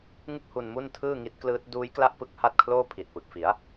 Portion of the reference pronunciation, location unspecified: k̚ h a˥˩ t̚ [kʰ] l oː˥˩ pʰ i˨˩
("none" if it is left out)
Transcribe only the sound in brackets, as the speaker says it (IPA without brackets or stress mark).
kʰ